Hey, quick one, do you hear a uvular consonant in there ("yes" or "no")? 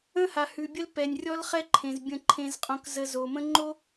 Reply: yes